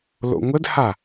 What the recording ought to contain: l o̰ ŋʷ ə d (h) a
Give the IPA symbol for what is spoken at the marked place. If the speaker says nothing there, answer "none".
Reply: h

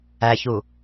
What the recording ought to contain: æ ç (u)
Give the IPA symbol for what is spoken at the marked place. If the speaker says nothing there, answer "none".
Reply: u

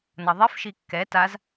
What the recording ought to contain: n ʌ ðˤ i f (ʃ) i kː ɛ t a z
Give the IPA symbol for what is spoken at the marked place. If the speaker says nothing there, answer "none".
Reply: ʃ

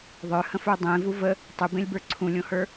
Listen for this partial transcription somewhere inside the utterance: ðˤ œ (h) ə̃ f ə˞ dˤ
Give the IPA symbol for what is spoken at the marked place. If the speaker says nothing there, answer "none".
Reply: h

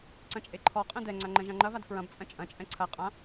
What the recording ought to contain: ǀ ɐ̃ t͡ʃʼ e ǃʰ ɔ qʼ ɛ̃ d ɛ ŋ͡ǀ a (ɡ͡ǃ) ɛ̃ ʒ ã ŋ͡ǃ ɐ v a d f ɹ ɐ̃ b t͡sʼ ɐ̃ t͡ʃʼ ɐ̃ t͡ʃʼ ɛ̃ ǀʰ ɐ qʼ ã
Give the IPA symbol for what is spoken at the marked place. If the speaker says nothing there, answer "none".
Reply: ŋ͡ǃ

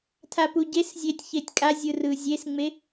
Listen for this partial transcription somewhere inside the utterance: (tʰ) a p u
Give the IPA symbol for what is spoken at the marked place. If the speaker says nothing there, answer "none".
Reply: tʰ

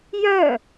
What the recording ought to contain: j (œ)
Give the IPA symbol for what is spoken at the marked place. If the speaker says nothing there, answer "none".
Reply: œ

